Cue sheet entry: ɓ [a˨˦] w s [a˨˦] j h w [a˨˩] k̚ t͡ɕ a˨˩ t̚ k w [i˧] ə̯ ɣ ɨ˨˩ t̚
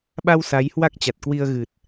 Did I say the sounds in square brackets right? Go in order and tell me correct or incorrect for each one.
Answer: incorrect: a˧, correct, incorrect: a˦˥, correct

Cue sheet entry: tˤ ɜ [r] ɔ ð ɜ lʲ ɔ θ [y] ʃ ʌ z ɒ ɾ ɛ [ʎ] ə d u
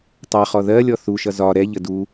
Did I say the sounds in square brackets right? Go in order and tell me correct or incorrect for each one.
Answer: incorrect: χ, incorrect: u, correct

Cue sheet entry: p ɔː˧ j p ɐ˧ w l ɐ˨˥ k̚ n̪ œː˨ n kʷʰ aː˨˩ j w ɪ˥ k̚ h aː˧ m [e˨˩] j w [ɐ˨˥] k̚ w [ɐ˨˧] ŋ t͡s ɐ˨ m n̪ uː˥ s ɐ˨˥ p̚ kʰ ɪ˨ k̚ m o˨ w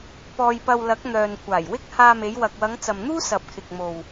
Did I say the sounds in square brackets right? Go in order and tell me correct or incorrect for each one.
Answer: incorrect: e˨˧, incorrect: ɐ˨, correct

